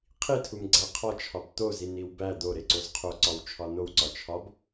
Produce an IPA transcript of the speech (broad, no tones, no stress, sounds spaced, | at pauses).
qʰ i tʰ u m ɡ͡ǀ æ qʰ ɒ t͡ʃʰ ɒ b t̪ o z i n i w b æ d̪ o ɾ e ǀ o z qʰ o ǀ ɒ w t͡ʃʰ ɒ n o w ǀ ɒ t͡ʃʰ ɒ b